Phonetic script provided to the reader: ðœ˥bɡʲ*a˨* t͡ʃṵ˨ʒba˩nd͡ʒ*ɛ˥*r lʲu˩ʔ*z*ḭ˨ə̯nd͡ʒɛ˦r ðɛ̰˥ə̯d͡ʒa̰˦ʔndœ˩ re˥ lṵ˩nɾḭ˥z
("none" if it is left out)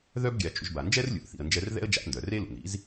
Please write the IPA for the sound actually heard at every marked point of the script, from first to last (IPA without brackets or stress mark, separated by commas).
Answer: a˨, ɛ˥, θ